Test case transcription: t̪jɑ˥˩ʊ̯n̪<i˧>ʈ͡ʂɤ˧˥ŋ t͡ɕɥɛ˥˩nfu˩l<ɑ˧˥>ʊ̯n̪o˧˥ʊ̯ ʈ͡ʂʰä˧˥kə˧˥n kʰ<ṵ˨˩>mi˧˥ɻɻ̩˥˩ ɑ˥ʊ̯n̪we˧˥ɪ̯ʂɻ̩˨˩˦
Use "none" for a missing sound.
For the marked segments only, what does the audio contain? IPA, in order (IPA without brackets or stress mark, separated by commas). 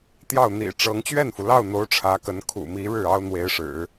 ḭ˨˩, ɑ˥˩, ṵ˨˩